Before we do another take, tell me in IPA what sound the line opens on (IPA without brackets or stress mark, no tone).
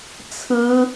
t͡sʰ